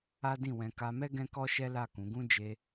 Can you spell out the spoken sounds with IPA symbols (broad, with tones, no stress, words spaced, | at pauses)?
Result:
a˦dĩ˦˨wɛ̃˧ ka˧mɛ˦ ɡɛ̃˦kɔ˦ʃɛ˦la˦˨ kũ˨˦ɡũ˦ d͡ʒe˧